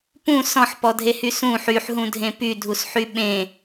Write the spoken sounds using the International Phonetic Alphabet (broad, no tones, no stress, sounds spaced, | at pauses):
p ũ s ɔ̃ ħ p ɔ dʱ e h y s ũ ħ y ħ ɦ ũ dʱ ẽ p y dʱ u s ħ y ɓ ẽ